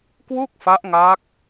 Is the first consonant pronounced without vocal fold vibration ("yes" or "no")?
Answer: yes